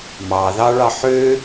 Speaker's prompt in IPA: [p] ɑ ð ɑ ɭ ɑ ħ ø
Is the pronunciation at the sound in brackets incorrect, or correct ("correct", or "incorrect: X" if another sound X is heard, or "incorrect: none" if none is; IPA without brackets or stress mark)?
incorrect: m